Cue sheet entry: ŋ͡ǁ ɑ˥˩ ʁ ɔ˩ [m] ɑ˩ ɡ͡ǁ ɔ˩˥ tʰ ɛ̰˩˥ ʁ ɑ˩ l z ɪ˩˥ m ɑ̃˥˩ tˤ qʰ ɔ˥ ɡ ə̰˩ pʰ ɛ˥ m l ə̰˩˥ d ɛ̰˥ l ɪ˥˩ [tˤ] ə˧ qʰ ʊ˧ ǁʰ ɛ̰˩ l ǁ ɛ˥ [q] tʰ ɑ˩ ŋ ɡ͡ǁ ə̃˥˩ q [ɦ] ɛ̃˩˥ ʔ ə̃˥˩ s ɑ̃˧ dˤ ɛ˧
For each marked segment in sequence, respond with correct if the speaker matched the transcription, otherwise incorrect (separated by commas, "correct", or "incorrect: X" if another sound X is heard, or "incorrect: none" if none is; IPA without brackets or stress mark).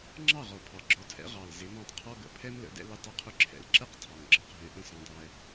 incorrect: pʰ, correct, correct, correct